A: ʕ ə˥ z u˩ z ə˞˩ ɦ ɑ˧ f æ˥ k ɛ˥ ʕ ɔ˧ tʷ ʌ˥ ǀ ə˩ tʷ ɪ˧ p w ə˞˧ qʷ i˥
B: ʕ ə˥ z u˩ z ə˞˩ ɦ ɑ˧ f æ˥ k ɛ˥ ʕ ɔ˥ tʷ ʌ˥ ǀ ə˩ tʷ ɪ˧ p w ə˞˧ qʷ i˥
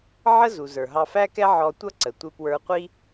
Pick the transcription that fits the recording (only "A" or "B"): A